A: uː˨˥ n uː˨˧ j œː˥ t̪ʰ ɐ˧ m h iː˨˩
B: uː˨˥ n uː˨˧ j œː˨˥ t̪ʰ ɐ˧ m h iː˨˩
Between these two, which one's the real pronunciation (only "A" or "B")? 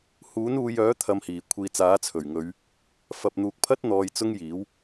B